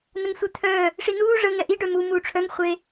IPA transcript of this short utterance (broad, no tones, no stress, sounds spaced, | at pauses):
n ə ŋ sʷ ɛ t̪ʰ œː | ʂ i n uː ʐ ə ŋ ɛ ʔ i ɖ œ m u m uː ʈ͡ʂʰ œ ŋ χʷ e